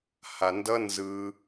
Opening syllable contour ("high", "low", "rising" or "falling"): low